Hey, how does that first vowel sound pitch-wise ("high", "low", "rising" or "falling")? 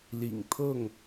low